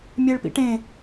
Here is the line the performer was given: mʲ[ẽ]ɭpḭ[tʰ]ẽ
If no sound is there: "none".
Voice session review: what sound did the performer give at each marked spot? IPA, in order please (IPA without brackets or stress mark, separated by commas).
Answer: e, ʈ